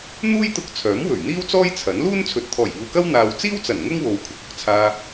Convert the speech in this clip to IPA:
n̪ uː˥ j t̪ ʊ˧ k̚ t͡sʰ œː˨˥ m w ɵ˨˩ ɥ n̪ iː˥ w t͡s ɔː˥ j t͡sʰ ɐ˨˥ n l uː˥ n t͡sʰ ɵ˨ t̚ t̪ʰ ɔː˨˩ j iː˨ w k ɐ˥ w n̪ aː˧ w t͡s iː˥ w t͡s ɐ˨˩ n ŋ ʊ˥ ŋ w o˨˧ w kʷʰ ɪ˨ k̚ ʊ˨˥ k̚ t͡sʰ aː˧

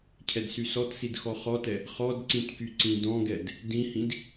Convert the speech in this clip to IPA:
cʰ ɛ d s y s ɔ t s i d x ɔ χ ɔ t ɛ | χ ɔ d ǀ ĩ t k y ǀ ĩ d ɔ̃ ɡ ɛ d | d ĩ h ĩ d

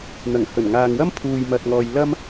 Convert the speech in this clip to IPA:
n̪ ɐ˨˩ ŋ h ɵ˨˩ n ŋ aː˨ ŋ w ɐ˥ m pʰ uː˨ j m ɐ˨ t̚ ŋ ɔː˨ j l ɐ˥ m

